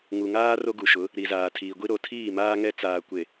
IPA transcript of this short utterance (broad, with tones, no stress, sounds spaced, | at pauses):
ŋ u˨ ŋ aː˦ r o˦ ɡ u˨ ʃ ʊ˨˦ | ɾ i˨ z aː˨ tʰ iː˨ ɡʷ i˦ ɾ o˨ tʰ iː˦˨ m aː˦ ŋ ɛ˦ t͡s aː˨ kʷ e˨